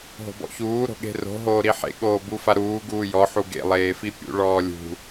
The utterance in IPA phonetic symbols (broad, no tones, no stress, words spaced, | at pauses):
ɦo̤bɔ̰çuː ɾo̤ɠe̤ro̤ ɦoːɾiħḛ ɠoːbufaɾuː ɡuːjɔ ħuɡḛ lˠeːfipʲṵ ɭɔːlʲṳ